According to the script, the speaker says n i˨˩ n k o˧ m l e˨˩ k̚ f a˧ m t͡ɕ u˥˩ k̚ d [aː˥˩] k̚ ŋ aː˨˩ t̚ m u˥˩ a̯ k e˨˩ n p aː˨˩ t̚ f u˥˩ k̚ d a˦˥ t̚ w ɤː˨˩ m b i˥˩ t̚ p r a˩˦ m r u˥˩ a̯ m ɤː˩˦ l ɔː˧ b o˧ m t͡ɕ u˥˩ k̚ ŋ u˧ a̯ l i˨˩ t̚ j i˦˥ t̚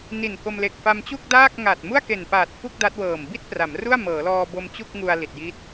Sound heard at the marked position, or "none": aː˥˩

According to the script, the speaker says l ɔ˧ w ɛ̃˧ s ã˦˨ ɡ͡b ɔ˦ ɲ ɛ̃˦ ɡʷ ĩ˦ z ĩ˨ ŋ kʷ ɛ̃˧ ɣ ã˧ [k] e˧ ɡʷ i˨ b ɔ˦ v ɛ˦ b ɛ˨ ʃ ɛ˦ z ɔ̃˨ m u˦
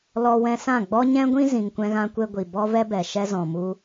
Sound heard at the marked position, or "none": kʷ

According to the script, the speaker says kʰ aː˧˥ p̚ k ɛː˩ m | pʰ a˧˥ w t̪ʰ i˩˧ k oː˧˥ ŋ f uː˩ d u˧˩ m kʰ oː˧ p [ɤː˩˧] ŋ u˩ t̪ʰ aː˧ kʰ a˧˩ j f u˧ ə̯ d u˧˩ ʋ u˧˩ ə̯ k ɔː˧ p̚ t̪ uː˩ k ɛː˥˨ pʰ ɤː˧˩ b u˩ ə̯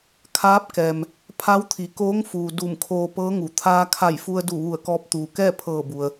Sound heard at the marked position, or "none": ɤː˧˥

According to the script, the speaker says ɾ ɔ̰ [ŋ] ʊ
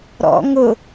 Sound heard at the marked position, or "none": ŋ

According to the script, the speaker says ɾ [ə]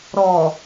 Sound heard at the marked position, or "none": ɔ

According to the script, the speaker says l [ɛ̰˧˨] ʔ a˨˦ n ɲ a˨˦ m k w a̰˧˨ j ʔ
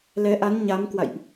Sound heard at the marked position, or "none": ɛ˨˦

